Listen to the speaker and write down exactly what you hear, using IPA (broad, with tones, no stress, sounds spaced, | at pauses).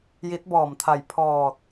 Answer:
j i˧˥ t̚ b ɔː˧˩ m t̪ʰ a˧˩ j pʰ ɔː˧˩ t̚